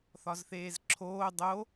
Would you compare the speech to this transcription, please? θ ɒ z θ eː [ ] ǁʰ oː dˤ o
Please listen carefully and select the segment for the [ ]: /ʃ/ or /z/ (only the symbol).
z